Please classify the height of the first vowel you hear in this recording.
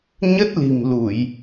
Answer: mid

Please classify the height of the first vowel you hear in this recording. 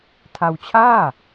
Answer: low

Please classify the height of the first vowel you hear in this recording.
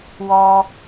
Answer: mid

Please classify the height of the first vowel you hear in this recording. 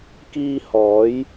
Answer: high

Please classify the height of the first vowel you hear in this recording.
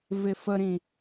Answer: high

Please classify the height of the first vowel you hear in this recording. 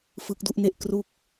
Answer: high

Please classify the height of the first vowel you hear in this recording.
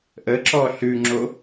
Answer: mid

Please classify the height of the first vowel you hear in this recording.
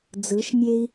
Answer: high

